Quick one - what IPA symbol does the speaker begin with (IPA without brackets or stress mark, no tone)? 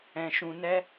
ɛ̃